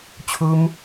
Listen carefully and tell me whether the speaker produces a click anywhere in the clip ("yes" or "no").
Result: no